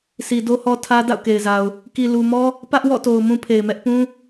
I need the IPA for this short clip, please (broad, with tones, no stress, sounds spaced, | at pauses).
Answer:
s i˨ d o˦ h ɔ˦ tʰ ä˦ d a̰˦˨ ʊ̯ k e˨ ɪ̯ z a˨ ʊ̯ | k i˨ l u˨ m ɔ˦ | p ä˦ ʔ w ɔ̰˦˨ t o˨ ʊ̯ m ũ˦ pʰ e˨ ɪ̯ m ɛ˦ ʔ p ũ˦